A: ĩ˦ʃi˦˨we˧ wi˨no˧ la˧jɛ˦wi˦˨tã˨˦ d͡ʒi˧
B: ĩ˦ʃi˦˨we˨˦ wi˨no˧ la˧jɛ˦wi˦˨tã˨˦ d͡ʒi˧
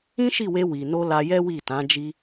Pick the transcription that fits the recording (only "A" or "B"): A